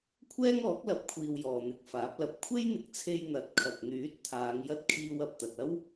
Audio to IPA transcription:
kʷʰ ɛː˥ ŋ ɔː˨˥ k̚ l ɐ˨ p̚ kʷʰ iː˨ w j ɔː˨ n̪ ɪ˨˥ k̚ f aː˨˥ p̚ l ɐ˧ p̚ kʷʰ e˥ j n̪ ɪ˨ k̚ t͡sʰ e˧ j n̪ ɐ˨˥ t̚ kʰ ɐ˨ k̚ n̪ yː˨˥ t̚ t̪ʰ aː˨˧ ŋ j ɐ˥ t̚ kʰ iː˧ w ɐ˨ p̚ t̪ ɐ˨ t̚ ɐ˥ w

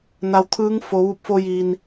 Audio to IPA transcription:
n a˩ w t̪ʰ ɯː˧˥ ŋ f o˩˧ ʋ u˧˩ p̚ f o˧ j i˩ n

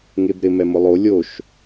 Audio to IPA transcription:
ŋ e b ɾ ɪ m ɛ m ʊ lˠ o lʲ o ʃ

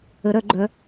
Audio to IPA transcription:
ə˩˧ ɾ œ˧˩˧ ɡ͡ǃ œ˩˧

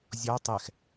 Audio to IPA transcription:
zʲ ɔ tˤ ɛ x

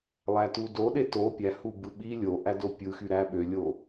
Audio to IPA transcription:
lˠ æ t u d o ɗ e t o pʲ æ h u b ɯ ɓ i lʲ o ʔ æ d o pʲ ɯ x y ɾ æ ɓ ø lʲ o

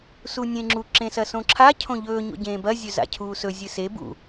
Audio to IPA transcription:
s u nʲ ẽ ŋ͡ǁ u ǁ ẽ s ɐ s õ ǁʰ a cʰ õ ʎ ɵː ɲ o̰ ɟ ẽː b ɐ zʲ ɵ z a̰ cʰ uː s ɵ zʲ ɨ s e b ṵ

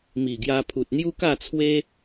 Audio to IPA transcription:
m i˨˩ ɡ j a˧ pʰ u˨ t̚ n̪ j u˦ k a˥˧ t͡sʰ w e˦

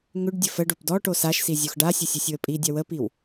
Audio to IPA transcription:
ŋ ʏ ɖ dʲ ə f ə ɖ o p d ɔ ʈ o s a ʃ s i zʲ o x ɖ a sʲ ə sʲ œ sʲ w ə pʼ i dʲ a w ə p i w

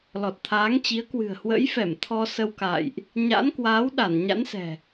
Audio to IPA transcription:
l ɔ˨˩ t̚ t̪ʰ aː˨˦ ŋ t͡ɕ i˨˦ ə̯ k w ɨ̤˨˩ ə̯ h w ə̰˧˥ j f ɛ˧˩ m t̪ʰ ɔ˧ s ə˧ w k a̰ː˧˨ j ʔ | ɲ a̰˧˥ n k w aː˨˦ w ɗ a˧˩ n ɲ a̰˧˥ n s ɛ̤˨˩

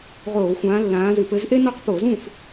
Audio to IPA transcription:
ʁ oː˧˩˧ xʷ ãː˨˦ lː ãː˨˦ z ɨ˧˩˧ p ɘ˨˦ z ʔ e˥ n ɔ˥˨ q p o˧˩˧ z ũ˥˨ f

